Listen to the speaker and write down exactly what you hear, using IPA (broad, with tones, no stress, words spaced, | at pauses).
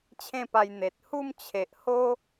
t͡ɕʰẽ˥˧pa˧j n̪e˨t̚ hu˥˧mt͡ɕʰe˨ʔho˦